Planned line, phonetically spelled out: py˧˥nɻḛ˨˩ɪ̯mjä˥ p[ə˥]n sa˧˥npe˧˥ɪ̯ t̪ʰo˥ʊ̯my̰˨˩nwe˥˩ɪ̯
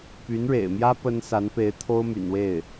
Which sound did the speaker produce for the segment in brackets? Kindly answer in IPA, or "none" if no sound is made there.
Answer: ə˥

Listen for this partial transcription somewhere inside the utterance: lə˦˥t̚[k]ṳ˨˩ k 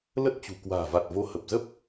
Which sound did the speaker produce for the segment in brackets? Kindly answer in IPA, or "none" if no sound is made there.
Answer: t͡ɕ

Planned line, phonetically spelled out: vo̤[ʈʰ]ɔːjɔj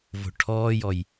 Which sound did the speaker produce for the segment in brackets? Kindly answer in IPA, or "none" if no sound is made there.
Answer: ʈʰ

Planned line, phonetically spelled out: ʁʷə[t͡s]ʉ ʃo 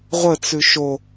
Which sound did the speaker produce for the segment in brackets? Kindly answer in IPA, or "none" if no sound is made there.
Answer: t͡s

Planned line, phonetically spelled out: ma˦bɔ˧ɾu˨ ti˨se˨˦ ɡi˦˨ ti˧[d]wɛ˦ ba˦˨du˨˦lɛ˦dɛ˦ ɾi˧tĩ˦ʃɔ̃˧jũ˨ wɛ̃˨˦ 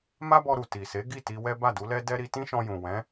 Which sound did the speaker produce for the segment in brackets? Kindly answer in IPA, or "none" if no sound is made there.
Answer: none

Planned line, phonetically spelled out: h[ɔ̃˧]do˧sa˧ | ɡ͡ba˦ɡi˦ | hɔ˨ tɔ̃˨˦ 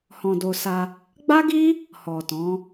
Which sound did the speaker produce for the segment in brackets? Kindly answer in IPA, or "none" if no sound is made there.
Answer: ɔ̃˧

